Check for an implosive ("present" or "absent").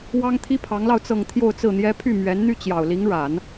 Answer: absent